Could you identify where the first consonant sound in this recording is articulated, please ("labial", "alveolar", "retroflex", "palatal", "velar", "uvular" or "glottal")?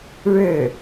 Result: retroflex